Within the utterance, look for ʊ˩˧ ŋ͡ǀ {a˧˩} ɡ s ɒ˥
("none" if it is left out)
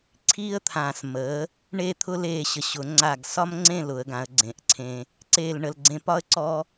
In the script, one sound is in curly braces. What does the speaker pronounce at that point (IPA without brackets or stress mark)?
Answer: a˧˩